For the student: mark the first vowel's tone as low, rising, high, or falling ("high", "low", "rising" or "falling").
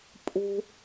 high